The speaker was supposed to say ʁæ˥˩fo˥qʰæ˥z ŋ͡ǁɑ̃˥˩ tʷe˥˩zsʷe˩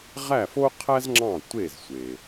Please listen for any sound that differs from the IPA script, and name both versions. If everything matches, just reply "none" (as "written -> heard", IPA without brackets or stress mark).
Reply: none